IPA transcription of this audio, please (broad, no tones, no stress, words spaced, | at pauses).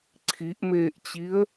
ǀʰiʔmeːʔt͡ɕiə̯